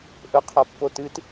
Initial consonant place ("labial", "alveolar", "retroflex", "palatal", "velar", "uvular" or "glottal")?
glottal